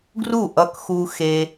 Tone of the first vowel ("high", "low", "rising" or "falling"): falling